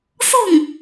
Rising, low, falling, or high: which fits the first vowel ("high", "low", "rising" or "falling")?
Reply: falling